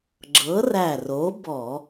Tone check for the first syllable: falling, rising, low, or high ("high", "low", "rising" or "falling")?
rising